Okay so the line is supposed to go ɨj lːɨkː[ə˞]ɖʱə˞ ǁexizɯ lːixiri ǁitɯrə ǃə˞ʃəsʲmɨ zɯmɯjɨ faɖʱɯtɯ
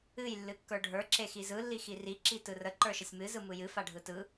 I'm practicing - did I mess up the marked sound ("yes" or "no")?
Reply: no